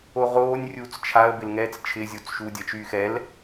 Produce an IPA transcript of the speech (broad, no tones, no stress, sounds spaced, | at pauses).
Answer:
o ʁ oː nʲ rʲ uː t͡s t͡ʃʰ a ə̯ b ɪ l ŋ ɛː t͡s t͡ʃʰ ɪ zʲ o t͡s ʃ u dʲ ɐ t͡ʃ yː x ɛ l